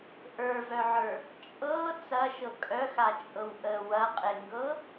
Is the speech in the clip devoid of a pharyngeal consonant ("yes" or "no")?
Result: no